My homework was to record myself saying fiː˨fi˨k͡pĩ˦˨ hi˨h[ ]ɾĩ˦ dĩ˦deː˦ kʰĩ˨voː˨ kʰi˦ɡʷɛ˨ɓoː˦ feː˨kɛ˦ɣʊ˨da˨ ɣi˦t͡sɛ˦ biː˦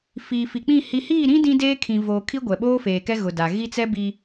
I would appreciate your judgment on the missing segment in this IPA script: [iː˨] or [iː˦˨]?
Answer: iː˦˨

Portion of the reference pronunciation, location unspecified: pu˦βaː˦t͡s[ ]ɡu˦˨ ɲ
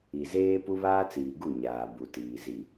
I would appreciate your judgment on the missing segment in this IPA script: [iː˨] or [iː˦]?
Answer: iː˨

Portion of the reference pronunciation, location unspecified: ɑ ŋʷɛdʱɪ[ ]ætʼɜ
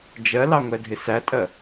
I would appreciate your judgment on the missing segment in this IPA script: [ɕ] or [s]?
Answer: s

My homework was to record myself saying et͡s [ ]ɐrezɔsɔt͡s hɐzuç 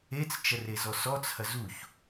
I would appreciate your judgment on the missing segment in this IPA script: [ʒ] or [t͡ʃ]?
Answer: t͡ʃ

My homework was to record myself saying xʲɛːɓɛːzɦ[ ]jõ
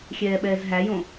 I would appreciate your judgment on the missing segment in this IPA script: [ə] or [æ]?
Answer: æ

